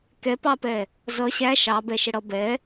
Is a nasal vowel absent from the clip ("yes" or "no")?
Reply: yes